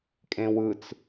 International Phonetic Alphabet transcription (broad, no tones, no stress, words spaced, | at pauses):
kʼẽwɯt͡s